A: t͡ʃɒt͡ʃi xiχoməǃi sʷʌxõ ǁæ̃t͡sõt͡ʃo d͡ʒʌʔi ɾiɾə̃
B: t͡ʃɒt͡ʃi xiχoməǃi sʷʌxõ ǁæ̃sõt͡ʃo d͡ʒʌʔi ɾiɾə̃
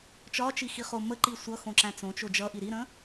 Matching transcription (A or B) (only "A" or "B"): A